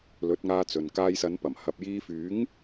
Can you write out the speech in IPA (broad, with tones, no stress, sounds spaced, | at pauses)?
l ɵ˨˥ t̚ ŋ aː˧ t͡s ɵ˨ n k aː˧ j s ɐ˨˧ n p ɐ˨˩ m h ɐ˨ p̚ j iː˧ f yː˨˥ ŋ